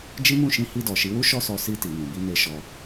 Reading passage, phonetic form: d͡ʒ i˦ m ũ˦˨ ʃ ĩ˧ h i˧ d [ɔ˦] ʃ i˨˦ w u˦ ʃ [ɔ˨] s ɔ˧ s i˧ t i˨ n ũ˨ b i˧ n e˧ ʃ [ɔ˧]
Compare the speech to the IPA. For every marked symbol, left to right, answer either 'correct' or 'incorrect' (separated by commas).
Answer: incorrect, incorrect, correct